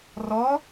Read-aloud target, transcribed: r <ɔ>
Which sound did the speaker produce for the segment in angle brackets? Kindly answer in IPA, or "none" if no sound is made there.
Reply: ɔ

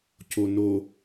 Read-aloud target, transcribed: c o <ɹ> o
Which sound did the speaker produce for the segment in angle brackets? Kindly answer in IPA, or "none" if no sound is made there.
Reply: n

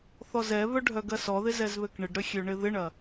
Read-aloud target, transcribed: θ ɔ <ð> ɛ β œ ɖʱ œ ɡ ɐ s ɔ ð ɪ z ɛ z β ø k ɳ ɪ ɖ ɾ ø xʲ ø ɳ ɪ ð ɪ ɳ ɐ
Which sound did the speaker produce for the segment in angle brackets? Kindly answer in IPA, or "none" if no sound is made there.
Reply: z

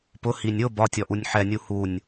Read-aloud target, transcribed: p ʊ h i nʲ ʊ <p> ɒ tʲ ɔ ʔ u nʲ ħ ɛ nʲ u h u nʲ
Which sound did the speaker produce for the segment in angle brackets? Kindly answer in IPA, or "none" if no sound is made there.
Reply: b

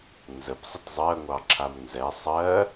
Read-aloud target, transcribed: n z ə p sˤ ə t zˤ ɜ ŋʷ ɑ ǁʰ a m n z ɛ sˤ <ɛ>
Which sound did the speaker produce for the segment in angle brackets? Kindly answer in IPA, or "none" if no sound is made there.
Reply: ɜ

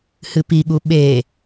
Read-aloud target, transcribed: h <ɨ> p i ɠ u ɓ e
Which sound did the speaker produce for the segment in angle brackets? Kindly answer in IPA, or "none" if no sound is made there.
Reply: ɨ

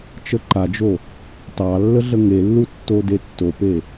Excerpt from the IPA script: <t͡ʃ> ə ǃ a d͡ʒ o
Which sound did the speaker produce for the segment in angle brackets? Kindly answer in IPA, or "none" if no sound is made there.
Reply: t͡ʃ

